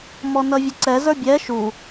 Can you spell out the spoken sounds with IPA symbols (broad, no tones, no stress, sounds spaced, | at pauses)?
m ɔ n ʌ vʲ ə ǀ ɛ z ə˞ bʲ ɛ ʃ u